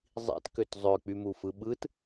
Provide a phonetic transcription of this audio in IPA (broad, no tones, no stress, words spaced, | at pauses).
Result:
zˤḭtkøt zˤøk͡pymufɯ ɓɯt